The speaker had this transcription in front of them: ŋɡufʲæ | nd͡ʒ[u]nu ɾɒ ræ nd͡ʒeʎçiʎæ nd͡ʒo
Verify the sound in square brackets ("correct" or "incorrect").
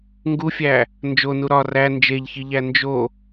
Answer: incorrect